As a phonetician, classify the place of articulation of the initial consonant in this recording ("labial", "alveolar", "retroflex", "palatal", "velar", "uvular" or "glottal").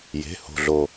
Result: palatal